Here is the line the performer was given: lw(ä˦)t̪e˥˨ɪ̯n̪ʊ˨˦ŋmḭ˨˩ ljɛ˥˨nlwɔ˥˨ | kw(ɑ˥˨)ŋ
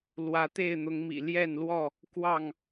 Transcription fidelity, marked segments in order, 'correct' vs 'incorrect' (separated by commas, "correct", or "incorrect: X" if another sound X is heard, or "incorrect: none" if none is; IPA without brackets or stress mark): incorrect: ä˨˦, correct